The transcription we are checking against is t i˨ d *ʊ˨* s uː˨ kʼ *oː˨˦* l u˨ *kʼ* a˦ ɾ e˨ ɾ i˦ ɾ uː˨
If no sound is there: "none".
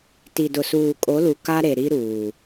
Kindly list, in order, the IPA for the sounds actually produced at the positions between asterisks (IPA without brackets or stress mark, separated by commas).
ʊ˨, o˨˦, k